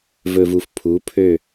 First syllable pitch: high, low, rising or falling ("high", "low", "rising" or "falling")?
low